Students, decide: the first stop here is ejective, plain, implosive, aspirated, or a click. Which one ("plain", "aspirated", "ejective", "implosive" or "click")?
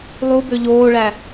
plain